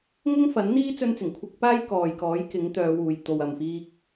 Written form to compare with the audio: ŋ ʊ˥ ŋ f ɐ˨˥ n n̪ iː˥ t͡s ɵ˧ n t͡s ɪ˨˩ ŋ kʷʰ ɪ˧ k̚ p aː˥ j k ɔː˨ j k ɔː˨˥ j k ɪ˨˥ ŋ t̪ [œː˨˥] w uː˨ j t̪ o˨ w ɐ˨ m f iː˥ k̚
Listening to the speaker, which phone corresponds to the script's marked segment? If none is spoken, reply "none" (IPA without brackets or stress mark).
œː˨˧